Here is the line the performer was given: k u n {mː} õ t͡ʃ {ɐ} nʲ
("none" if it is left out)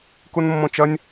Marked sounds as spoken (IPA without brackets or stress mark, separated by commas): mː, ɐ